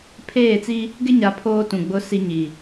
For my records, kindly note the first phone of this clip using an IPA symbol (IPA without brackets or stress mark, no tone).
pʰ